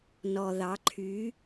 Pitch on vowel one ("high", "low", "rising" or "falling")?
low